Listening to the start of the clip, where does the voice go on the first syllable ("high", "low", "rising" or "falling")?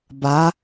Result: rising